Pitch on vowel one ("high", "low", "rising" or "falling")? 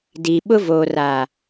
low